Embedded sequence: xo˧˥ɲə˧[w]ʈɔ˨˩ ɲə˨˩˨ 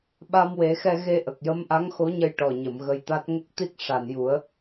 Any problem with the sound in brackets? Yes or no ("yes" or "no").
yes